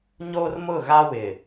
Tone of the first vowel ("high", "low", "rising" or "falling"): high